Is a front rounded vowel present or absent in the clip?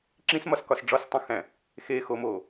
absent